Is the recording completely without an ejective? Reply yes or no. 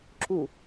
yes